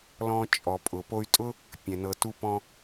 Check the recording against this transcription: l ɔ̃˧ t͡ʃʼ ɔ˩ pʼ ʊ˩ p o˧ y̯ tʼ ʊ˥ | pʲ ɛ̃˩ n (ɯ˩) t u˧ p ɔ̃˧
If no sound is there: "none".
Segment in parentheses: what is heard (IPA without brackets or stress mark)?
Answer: ɤ˩